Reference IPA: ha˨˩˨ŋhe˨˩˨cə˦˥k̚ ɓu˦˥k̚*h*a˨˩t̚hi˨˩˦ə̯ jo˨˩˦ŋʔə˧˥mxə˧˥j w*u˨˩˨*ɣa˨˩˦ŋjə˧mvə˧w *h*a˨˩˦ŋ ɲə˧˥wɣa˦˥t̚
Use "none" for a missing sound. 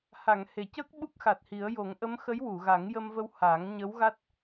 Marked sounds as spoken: x, u˨˩˨, h

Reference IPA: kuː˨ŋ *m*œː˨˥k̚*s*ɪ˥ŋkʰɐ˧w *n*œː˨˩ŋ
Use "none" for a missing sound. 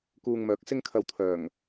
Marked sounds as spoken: m, s, t̪ʰ

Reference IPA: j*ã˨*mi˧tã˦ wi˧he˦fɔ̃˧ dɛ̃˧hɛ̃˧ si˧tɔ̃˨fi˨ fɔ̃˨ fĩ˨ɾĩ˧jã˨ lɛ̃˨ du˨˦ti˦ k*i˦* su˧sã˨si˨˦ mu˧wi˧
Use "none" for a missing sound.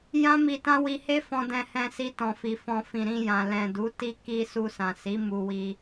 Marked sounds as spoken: ã˦, i˦

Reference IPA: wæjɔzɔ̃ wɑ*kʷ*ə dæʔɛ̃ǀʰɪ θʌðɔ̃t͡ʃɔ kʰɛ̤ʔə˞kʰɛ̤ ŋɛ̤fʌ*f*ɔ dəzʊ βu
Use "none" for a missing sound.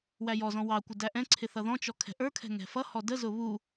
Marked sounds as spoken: kʷ, h

